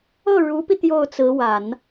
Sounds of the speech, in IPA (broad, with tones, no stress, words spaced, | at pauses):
ɤ˥˩ɻu˧˥pi˧ t̪jo˥˩ʊ̯t͡sɹ̩˧˥wa˨˩˦n